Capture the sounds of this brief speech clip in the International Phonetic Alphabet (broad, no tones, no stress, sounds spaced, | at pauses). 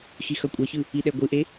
x i x ʌ kʷʼ ʌ ç ɯ | i ɗ ɛ ɡʷ ɯ ʔ e